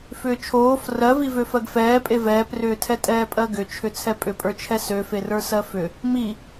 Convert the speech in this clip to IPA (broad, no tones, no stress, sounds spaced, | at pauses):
f ʏː t͡ʃʰ oː f r ɜ v i v ø f ɜ ɡ f ɛː pʼ e v ɛː p r ʏː tʰ ɛ tʼ ɛː pʼ ɜ ɡ ʏ t͡ʃʰ ʏ t͡sʰ ɛ pʼ ʏ pʼ ə˞ t͡ʃʰ ɛ s ø f e r ə˞ s ɜ f ʏ | m i